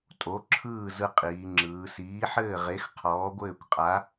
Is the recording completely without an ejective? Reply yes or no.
no